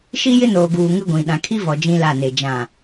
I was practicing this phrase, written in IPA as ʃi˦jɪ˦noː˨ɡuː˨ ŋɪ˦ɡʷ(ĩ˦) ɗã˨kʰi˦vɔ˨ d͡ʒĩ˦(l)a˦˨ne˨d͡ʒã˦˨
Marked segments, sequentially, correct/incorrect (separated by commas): incorrect, correct